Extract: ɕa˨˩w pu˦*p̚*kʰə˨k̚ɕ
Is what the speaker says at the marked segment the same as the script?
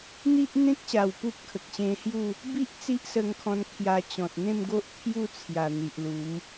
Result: yes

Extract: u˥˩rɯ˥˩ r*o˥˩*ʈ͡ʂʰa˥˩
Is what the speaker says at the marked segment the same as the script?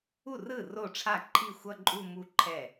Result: yes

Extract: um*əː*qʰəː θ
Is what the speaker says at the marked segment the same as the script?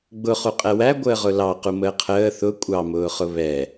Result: yes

